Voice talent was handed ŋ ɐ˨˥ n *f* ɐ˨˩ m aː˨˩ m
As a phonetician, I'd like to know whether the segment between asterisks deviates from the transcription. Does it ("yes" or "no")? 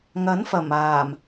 no